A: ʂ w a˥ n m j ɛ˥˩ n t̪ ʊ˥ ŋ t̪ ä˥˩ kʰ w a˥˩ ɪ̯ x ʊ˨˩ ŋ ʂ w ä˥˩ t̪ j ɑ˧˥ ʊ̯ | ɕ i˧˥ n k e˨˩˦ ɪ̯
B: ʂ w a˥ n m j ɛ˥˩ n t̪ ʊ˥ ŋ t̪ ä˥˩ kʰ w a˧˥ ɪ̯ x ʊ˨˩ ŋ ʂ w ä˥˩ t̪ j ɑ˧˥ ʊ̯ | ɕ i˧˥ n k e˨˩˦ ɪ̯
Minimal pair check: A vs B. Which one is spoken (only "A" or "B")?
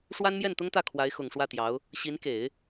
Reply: B